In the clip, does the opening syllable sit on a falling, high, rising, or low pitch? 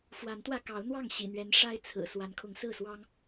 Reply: rising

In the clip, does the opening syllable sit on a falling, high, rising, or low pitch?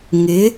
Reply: rising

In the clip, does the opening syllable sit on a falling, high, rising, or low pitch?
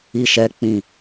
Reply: high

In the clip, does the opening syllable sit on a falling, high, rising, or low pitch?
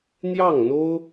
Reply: falling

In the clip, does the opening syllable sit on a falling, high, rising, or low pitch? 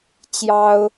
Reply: high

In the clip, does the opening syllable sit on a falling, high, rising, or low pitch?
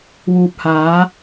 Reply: low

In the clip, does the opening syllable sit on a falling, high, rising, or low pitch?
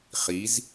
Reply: rising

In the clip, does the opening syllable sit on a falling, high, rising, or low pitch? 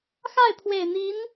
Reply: falling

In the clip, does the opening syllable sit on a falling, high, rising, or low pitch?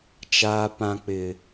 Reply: high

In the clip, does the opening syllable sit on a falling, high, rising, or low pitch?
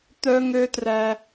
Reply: high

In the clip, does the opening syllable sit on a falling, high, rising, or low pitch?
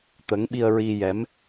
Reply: rising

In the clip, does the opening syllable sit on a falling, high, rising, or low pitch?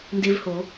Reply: high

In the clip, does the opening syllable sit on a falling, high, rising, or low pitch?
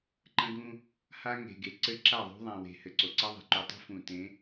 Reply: high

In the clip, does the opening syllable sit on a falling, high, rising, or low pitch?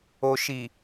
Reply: low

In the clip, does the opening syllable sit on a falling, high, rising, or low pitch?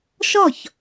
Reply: falling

